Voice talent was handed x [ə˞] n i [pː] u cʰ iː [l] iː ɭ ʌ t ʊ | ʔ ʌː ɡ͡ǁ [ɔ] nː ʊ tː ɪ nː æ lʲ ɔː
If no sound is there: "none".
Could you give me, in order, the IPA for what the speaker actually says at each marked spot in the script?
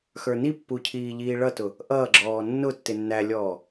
ə˞, pː, ʎ, ɔː

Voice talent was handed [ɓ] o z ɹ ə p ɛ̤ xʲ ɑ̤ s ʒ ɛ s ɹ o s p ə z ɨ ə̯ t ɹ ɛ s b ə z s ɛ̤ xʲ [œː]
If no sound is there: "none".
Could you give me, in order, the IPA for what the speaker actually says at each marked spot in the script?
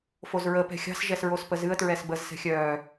f, œː

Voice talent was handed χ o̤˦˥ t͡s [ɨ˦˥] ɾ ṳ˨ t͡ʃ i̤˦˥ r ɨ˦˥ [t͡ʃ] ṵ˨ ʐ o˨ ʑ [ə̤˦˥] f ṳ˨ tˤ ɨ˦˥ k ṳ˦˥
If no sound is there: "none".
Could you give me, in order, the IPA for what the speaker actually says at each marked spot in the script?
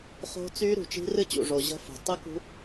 y˦˥, t͡ɕ, ə̤˦˥

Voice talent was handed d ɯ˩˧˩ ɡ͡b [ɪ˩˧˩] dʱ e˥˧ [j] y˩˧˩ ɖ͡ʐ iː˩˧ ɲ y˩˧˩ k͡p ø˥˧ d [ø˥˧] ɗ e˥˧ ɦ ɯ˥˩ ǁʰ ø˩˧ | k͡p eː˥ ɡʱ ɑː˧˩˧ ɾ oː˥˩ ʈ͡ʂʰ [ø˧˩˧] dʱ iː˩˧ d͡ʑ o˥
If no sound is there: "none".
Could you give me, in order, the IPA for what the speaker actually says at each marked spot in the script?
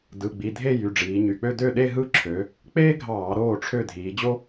i˩˧˩, j, ø˥˩, ø˥˩

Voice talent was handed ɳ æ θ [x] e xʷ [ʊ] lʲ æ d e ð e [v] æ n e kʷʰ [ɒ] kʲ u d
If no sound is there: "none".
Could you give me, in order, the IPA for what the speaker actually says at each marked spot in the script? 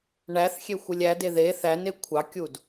xʲ, ɯ, θ, ɑ

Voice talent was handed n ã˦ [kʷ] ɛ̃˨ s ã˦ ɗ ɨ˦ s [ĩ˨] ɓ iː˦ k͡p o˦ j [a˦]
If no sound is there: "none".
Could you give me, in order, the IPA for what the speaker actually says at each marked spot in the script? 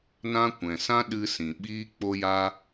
kʷ, ĩ˨, a˦

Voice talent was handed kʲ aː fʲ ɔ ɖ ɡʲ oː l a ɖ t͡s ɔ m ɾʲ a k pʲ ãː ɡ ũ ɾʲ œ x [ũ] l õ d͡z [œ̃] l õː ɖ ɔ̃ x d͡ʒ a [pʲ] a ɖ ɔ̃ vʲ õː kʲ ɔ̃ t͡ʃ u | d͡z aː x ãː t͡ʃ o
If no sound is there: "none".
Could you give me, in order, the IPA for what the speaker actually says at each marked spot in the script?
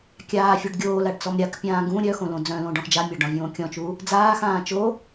õ, œ̃, mʲ

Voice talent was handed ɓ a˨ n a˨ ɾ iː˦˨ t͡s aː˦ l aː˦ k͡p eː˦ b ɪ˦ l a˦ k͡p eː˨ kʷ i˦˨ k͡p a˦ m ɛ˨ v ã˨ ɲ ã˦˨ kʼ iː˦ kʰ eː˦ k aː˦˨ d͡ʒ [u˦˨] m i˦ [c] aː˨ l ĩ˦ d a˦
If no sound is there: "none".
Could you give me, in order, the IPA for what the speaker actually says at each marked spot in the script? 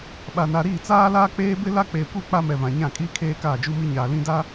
u˦, ɲ

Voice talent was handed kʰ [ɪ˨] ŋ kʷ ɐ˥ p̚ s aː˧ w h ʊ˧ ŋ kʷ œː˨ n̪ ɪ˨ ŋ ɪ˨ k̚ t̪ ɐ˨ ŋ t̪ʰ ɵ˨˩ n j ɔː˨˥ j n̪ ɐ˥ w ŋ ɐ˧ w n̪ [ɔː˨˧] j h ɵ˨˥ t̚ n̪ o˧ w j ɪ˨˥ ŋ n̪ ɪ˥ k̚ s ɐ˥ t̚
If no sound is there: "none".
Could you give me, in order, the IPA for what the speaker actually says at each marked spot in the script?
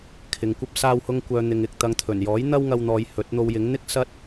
ɪ˨, ɔː˨˧

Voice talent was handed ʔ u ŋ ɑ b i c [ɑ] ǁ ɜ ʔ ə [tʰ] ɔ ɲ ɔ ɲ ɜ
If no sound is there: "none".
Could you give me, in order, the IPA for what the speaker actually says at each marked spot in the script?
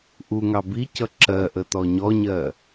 ʌ, t

